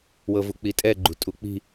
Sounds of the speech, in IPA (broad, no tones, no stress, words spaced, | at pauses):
wɤvuk͡pitʼɛ ɡ͡ǃṳtʼuk͡pi̤